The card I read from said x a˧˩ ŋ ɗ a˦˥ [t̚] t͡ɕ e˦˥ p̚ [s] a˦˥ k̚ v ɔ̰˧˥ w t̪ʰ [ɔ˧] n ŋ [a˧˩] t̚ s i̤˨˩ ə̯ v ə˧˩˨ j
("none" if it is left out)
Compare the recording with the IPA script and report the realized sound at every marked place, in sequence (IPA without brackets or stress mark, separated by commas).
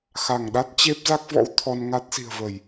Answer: t̚, z, ɔ˧, a˦˥